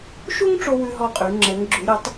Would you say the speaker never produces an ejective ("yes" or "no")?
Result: no